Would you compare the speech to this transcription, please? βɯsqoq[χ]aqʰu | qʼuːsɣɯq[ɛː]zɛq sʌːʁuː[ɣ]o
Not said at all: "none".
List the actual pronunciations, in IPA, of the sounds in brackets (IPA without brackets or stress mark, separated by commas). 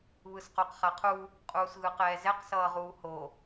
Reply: χ, ɛː, h